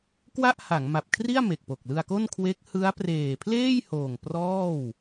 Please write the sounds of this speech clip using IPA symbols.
k w a˥˩ ʔ h a˩˦ ŋ m a˨˩ p̚ kʰ r i˥˩ a̯ m e˨˩ k̚ p o˨˩ k̚ l ɯ˧ a̯ k o˥˩ n kʰ w e˦˥ k̚ h ɯ˦˥ a̯ p r eː˨˩ pʰ l eː˥˩ j h oː˨˩ ŋ p r ɔː˥˩ w

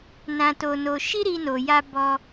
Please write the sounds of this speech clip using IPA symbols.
n ã˧ t o˧ n o˧ ʃ i˦ ɾ i˧ n o˨ j a˧ b ɔ˧

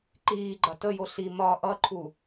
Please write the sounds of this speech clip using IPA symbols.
ǃ iː ɡ͡ǃ ɐ t ə j o ɬ i m ɒ ʔ ʌ ǃʰ u

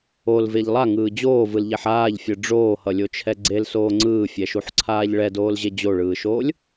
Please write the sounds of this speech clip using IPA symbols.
o l v e ʎ lˠ a ŋ ɯː d͡ʑ oː v ɯ l ʎ ɛ ħ aː ʎ fʲ ɯ ɖ͡ʐ oː h ʌ lʲ o t͡ʃʰ ɛ ɡ͡ǀ e l s oː ŋ͡ǀ ɯː fʲ ɛ ʃ u ħ ǀʰ aː ʎ ɭ ɛ d oː l ʑ e d͡ʑ o ɭ ɯː ʃ oː lʲ

